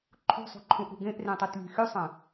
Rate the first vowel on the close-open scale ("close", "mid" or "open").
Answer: close